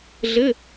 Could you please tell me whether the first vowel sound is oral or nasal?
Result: oral